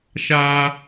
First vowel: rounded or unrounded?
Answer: unrounded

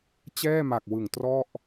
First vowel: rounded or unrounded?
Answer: unrounded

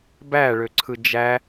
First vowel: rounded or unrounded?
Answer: unrounded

